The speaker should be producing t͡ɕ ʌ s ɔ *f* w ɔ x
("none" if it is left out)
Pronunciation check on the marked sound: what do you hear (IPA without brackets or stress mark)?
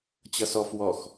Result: f